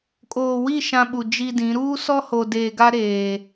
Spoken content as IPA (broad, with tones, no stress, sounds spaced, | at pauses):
kʼ oː˨ w i˦˨ ʃ ã˦ ɓ u˨ d͡ʒ i˦ d ĩ˨˦ ɾ uː˦ s ɔ˦ h o˨ d eː˨ ɡ a˦ ɾ eː˨